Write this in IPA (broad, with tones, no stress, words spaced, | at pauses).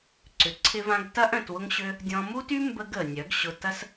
ǀʏ˧ ǀʰɪ˦vã˦ɡ tɐ˦ʔ œ̃˧twʊ˦ŋɕø˦ | dʲɔ̃˧mu˦ty˦ mbə˦ɡə˨ nʲœ˨˦ɡɕʊ˧ tɐ˦s